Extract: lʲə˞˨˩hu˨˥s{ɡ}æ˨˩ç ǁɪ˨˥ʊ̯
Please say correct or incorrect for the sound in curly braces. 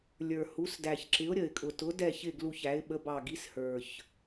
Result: incorrect